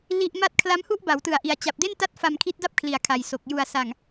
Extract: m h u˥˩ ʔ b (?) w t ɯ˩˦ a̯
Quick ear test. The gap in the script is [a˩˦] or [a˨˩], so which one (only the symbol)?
a˩˦